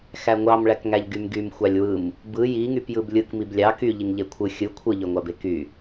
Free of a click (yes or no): yes